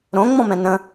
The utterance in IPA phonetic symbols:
ɾõŋ͡mɔ̃mɛ̃ nə̃

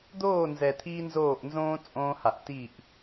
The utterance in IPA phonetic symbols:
d̪oː˦˨nzɛ˨t̪ʰiː˧ nzoː˦˨ʔnzõː˦ t͡sʼõː˧ha˨ʔ ti˦˨ʔ

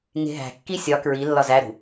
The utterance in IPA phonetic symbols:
ŋe̤ɦæ̤kːi sʲɒ kɹi lːɒzæɾṳ

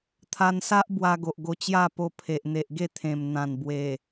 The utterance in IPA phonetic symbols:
t̪ʰa˧nsa˦ʔ bwa˧ɡo˨ʔ ɡo˧t͡ɕja˥˧po˧ pʰe˨ʔ n̪e˨ʔɡe˥˧ t̪ʰẽ˨˩m n̪ã˨˩nbwe˨˩

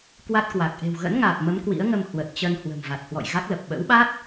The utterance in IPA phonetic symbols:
kwa˦˥t̚kwa˨˩k̚ ʔe̤˨˩wɣə̰˧˥nŋaː˨˩p̚ mə˨˦mkwḭ˧˥ə̯ŋə˧m hwə˨˩t̚t͡ɕə˧n hwə̤˨˩mva˨˩t̚hwɔ̰˧˨j ɣa˦˥k̚lə˨˩p̚ ɓə̰˧˥wɓa˦˥t̚

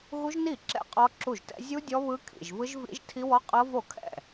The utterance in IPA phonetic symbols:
ɣu˦˥ʒni˥˩ ǁɛ̰˥˩qʼɔ˦˥ǁu˥˩ʒtɛ̰˦˥ zʲu˦˥ dʲɔ˦˥βɯ˦˥kʰḭ˥˩ʒ vɯ˦˥ʒvḭ˦˥ʒtʰi˦˥wɔ˦˥ qʼɤ˦˥vo˥˩ kʰɛ̰˥˩

